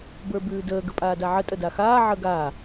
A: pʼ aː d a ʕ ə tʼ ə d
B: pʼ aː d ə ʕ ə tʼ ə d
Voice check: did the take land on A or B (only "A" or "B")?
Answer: A